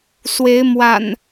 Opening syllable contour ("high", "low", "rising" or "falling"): rising